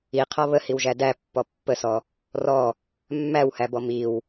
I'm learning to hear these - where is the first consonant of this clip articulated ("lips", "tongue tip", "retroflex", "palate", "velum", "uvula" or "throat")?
uvula